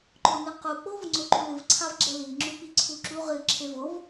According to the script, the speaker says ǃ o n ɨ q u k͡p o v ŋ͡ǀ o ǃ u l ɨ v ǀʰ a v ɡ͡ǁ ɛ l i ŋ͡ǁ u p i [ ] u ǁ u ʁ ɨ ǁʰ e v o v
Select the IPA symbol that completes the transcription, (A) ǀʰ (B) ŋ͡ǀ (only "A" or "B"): A